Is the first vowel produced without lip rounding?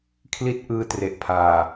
yes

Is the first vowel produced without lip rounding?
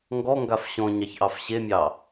no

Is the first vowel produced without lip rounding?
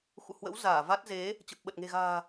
no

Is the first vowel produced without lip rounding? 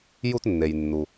no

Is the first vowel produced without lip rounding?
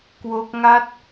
no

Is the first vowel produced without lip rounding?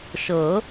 yes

